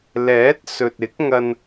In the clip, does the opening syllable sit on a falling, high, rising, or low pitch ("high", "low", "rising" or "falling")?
rising